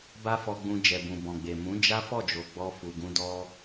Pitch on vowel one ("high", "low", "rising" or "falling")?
high